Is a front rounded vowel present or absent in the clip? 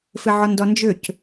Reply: present